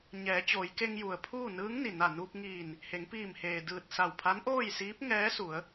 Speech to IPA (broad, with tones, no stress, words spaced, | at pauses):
ɲɛː˩˧t͡ɕoː˩˧jke˧ŋ ju˩ə̯pʰuː˥˨ nɯː˧˥ŋni˩ na˧˩ nuː˧p̚ŋiː˧˩n | he˩˧ŋpiː˧˩mheː˩ dɯː˧˩t̚sa˧˩wpʰa˧˥n ʔoː˥˨jsiː˧˥p̚ŋɛː˧˥su˩˧ə̯